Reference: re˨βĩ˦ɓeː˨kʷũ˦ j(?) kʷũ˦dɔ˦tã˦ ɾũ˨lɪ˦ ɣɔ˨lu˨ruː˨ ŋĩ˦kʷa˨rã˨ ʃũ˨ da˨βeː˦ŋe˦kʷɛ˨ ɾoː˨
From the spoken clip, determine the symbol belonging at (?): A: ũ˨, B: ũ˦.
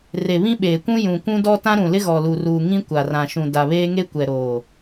A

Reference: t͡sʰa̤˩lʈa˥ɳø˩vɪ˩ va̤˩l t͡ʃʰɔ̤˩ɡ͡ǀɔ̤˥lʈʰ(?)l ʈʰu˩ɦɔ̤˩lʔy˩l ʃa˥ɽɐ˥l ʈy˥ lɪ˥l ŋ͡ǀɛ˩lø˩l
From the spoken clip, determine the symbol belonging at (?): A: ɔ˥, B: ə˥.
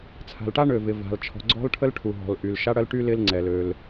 B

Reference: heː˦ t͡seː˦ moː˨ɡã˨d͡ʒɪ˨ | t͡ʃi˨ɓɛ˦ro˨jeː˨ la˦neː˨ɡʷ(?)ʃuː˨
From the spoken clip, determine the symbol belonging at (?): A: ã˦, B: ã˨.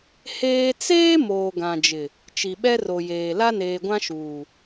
A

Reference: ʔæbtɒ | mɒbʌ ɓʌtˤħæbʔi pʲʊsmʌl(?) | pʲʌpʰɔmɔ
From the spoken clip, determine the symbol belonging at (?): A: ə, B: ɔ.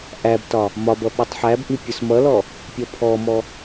B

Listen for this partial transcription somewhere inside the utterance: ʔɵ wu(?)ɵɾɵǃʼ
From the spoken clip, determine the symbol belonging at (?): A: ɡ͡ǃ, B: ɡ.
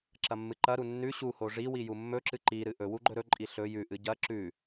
A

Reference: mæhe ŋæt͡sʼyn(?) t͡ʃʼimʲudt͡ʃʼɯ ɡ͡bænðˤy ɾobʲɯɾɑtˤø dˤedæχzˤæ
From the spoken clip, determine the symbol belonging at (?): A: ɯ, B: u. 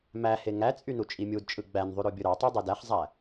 B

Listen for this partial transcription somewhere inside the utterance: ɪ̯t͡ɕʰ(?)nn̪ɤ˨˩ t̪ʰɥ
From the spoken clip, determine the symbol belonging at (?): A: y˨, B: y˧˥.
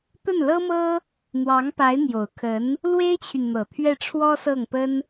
A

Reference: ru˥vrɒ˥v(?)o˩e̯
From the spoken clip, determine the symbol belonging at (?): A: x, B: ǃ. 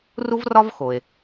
A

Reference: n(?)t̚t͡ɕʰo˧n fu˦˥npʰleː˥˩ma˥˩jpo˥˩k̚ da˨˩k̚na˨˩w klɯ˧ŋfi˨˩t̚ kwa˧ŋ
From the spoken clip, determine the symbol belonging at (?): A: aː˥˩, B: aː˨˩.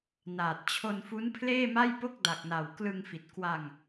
B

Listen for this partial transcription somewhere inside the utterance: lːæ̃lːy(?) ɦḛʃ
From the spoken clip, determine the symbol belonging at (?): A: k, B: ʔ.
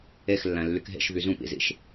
A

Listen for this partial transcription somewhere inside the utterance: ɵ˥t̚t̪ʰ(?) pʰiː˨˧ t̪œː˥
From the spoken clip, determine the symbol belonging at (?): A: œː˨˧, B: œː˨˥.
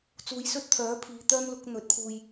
B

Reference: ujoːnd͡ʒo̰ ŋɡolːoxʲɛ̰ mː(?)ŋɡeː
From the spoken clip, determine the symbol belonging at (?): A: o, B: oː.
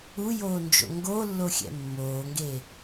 B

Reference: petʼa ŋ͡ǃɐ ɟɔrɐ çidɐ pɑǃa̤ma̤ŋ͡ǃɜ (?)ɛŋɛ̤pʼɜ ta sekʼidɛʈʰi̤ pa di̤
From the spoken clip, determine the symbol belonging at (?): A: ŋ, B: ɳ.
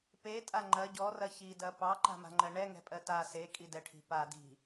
B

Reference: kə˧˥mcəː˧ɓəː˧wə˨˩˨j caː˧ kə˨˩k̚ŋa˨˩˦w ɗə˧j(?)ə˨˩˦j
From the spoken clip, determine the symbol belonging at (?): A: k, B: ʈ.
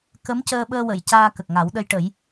B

